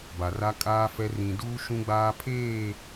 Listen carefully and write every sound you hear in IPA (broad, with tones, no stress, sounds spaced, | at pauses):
b a˨ r a˦ kʼ aː˦ f ɛ˦ r ĩ˨ d uː˦ ʃ ũ˦ ɡ͡b aː˦ pʰ eː˦˨